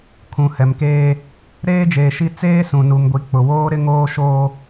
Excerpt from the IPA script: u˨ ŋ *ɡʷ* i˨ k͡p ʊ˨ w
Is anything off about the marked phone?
no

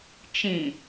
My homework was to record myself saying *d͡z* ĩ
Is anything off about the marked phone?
yes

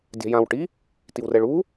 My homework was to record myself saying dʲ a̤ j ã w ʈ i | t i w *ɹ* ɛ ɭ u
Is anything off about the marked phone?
yes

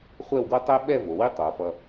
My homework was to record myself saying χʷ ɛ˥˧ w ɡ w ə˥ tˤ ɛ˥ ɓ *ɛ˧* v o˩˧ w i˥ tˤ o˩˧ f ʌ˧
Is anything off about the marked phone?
yes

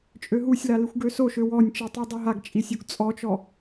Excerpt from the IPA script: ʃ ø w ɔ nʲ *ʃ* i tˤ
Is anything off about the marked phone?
yes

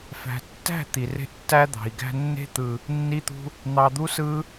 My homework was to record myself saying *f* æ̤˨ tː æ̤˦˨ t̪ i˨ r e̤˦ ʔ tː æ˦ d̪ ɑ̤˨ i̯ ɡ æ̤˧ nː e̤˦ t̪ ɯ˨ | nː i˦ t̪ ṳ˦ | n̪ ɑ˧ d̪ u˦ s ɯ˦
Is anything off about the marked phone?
no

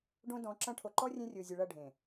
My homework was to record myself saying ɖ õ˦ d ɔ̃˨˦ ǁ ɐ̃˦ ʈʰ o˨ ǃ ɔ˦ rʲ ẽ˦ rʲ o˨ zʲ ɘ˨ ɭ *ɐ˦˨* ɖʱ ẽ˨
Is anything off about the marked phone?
no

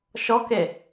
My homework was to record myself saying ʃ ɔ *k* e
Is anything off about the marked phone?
no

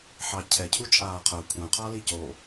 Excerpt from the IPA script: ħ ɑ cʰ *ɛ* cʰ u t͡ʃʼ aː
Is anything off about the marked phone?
no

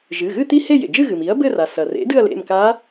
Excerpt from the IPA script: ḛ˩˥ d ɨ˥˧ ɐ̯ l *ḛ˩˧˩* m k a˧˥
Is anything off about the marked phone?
no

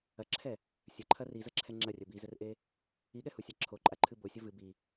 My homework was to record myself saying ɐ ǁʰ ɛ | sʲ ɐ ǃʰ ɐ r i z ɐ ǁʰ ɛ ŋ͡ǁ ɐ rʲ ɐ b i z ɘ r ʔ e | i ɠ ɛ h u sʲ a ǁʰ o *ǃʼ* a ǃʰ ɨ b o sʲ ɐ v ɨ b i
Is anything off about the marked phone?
no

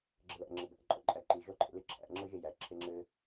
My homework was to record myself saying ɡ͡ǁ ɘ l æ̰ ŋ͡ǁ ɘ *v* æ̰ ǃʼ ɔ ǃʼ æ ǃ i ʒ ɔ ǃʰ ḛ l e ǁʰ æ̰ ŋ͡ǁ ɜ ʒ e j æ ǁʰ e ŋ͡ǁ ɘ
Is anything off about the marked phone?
yes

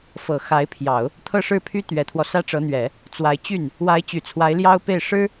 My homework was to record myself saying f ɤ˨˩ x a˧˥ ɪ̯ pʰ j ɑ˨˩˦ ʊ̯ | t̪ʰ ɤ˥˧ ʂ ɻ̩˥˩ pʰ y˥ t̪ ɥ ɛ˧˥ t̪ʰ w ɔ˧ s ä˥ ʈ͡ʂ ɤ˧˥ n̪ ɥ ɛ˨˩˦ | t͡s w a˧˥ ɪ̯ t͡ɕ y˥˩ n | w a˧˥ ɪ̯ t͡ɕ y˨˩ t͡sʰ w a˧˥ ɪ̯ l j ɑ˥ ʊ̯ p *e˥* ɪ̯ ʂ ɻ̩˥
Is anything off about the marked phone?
yes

